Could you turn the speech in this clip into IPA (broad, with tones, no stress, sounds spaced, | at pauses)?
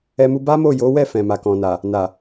ɛ˦ m u˦ b a˦ m o˦˨ j o˨˦ w ɛ˦˨ f ɛ̃˨ m a˨ k ɔ̃˨ n a˨ | n a˨